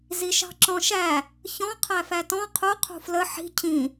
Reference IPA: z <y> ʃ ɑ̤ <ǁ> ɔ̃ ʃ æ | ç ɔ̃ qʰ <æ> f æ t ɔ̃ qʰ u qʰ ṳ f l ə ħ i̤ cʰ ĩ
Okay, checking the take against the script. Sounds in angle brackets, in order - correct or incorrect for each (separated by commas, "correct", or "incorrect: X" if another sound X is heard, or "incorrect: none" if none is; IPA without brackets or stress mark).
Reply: incorrect: i, correct, correct